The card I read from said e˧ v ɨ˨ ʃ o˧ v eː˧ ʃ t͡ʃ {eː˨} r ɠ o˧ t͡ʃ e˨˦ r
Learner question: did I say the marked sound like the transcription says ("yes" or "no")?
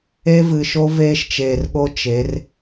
yes